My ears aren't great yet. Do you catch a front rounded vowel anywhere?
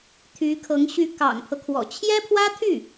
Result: yes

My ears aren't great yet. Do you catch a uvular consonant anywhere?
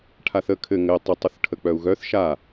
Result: no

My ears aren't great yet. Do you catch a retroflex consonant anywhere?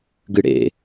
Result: yes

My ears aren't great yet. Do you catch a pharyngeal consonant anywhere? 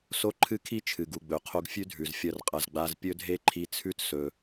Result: no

